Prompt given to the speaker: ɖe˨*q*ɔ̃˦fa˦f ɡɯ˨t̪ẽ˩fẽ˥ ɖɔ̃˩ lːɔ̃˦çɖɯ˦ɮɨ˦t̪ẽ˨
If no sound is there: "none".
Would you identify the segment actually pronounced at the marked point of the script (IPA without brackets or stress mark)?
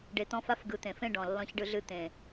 t̪